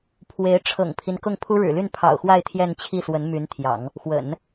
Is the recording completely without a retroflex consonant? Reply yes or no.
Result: no